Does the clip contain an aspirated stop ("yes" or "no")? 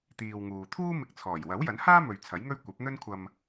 yes